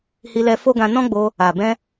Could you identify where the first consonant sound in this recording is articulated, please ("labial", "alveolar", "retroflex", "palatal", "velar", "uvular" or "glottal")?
glottal